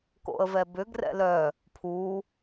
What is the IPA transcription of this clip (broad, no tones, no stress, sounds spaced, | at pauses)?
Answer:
k o̰ ə̯ v ɛ b ʏ ɡ r ɛ̰ l œ | pʰ uː